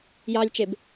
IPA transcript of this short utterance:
jɑlʲt͡ʃeb

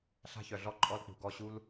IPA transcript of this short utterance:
ɬa̤˦çœ˨ɮɔ˦˨ ǃʼɔ˦lk͡pṳ˨ɡɔ˦˨ ɕu˦l

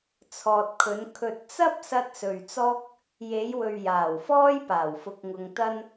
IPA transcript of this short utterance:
t͡sʰɔː˨t̚kʰɵ˨˧n kʰɵ˨t̚t͡sɐ˥p̚sɐ˧t̚ sɵ˨ɥt͡sɔː˥k̚ | je˨˧jwɵ˨ɥ jaː˨˩wfɔː˥j paː˨˩wfʊ˨k̚ŋʊ˨ŋ t̪ɐ˥n

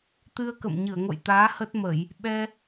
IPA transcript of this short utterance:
t̪ɨ˧ə̯kə̰˧˨m ɲɨ˧˩ə̯ŋo̰˧˨j t̪aː˨˦ hə˦˥t̚mə˧˩˨j | ɓɛ˧

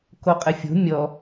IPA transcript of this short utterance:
koqʼɘfʲo̤ mʲɔ

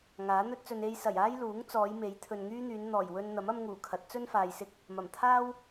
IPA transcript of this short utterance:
ŋaː˨˥n̪ɵ˥t̚t͡sɵ˧n e˧jsɐ˨˩jaː˥j luː˨˥ŋt͡sɔː˨˧j me˨˥jt̪ʰɵ˨nŋyː˥n̪yː˨˧n n̪ɔː˨˩jwɵ˧nn̪ɐ˨˥m ɐ˥mŋuː˨˩kʰɐ˨˥t̚ t͡sɵ˥nfaː˨jsɪ˧k̚ | mɐ˨˩mt̪ʰaː˥w

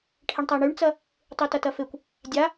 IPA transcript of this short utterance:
ʈʰeɳtˤaɳyɳt͡sɐ | tˤytɐtɐfekʷ | dʲa

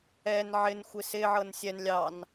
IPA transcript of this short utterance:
ɛn ʕɪnxʷɪ sɪʕɤn sʲɛn lʲɑn

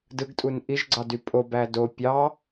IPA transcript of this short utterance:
dɯɡtʼun ʔiʒɡ͡ǀɑdy pʼobæ do pʲɑ

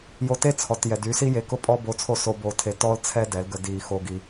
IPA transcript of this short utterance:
jo˧te˦t͡sʰɔ˨t jɛ˨dy˨˦si˦je˨˦ kʊ˦pʼɔ˦ bo˧t͡sʰo˦˨ so˧ bo˧tʰe˧ tɔ˦lt͡sʰɛ˦ dɛ˨˦lɡə˧ di˨ xo˧ɡi˧

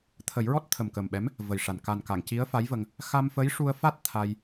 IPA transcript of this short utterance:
t̪ʰə˨˩˦jɹɔ˦˥t̚ t̪ʰə˨˩mkə˨˩mɓɛ˧˥m | və˨˩jʂa˨˩n ka˨˩nka˨˩˨ŋ ci˧˥ə̯fa˧˥jvə˧ŋ | xa˧m fə˧˥jʂu˧ə̯fa˦˥t̚ t̪ʰa˧j

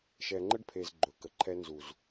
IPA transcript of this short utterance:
ʃɛ˨ŋ͡ǃə˦ɖpʰe˨z ɡ͡ǃɵ˨˦kə˨ǃʰɛ˦ nzu˨z

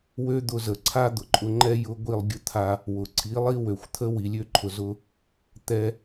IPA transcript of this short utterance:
wø˦d̪ʊ˧zə˨ ǀʰa˦d̪ʊ˨ǃʼʊ˧ ŋ͡ǃɛ˦ jʊ˧ ɡʷi˦˨lˠɡʲʊ˦ t̪ʰa˧ | wʊ˨ ǀʰi˨˦lˠi˦wø˨xʷt̪ʰə˦ wi˨lʲø˦ǃʰʊ˨zʊ˧ | t̪ɛ˧

